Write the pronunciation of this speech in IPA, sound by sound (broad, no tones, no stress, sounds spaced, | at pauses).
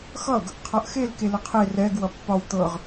x ʌ ɡ | qʰ ʌ ʔ x e l k e l ə qʰ e r ɛ ɡ w ʌ pː ɒ w t̪ ɤ ʁ